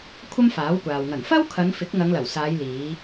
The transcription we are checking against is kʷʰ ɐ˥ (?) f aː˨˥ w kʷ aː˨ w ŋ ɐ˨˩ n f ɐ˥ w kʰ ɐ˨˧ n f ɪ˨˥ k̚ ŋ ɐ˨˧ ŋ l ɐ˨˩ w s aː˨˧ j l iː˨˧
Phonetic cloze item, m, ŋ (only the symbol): m